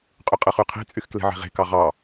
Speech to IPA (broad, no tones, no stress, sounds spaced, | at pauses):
qʼ y qʼ ɯ χ y qʰ e̤ t͡sʼ y x k l e̤ ʕ e̤ ʁ e̤ k ɑ ʁ ɑ